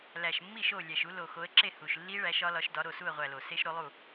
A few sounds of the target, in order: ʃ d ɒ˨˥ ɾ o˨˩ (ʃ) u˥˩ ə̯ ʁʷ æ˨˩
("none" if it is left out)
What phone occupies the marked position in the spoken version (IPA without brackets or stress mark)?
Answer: s